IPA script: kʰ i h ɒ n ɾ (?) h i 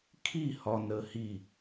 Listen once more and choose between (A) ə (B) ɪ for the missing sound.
A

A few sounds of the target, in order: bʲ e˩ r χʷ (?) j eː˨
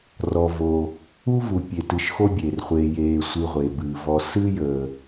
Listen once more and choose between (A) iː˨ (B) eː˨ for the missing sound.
B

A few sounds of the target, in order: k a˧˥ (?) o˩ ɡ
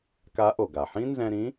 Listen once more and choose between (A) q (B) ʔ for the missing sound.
B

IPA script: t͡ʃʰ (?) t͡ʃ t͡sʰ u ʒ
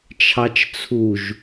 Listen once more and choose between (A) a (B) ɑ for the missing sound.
B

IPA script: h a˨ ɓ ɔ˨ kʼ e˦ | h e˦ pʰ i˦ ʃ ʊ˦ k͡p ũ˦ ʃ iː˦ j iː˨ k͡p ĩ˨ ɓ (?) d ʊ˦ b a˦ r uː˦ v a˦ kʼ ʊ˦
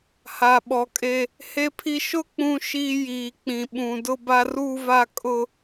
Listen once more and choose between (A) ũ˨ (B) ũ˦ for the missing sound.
A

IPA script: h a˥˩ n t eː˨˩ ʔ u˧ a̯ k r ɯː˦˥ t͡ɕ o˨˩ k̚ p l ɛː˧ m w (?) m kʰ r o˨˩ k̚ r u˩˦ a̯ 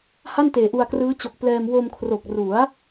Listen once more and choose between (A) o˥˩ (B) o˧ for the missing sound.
B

